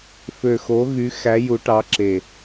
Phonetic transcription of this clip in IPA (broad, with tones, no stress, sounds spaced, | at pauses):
f ø˨˩ x o˨˦ ɣ y˨˦ x æ˨˦ j u˨˦ ʈ ɑ˨˦ ǁ e˨˩